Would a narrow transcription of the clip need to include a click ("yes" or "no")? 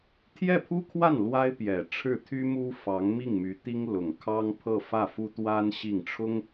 no